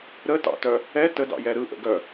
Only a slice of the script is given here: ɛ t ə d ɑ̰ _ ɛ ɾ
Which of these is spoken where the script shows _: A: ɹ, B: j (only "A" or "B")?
B